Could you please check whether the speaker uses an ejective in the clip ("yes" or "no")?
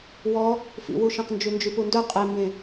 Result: yes